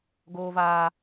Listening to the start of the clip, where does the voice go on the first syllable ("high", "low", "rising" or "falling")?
low